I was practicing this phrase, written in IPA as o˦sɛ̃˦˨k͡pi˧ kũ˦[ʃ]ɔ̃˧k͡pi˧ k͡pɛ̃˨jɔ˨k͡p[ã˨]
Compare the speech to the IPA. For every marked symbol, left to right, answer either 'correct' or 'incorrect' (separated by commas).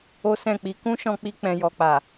correct, incorrect